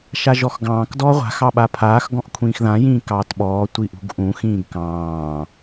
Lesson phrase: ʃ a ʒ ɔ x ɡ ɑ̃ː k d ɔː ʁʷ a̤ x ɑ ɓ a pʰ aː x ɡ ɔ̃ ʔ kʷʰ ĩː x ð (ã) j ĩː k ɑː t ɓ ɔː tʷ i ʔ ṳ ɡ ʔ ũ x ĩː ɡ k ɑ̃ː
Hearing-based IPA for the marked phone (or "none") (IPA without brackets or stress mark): ã